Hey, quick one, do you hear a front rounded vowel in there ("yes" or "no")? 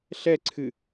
no